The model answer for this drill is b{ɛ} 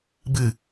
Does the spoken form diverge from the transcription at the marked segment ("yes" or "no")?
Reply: yes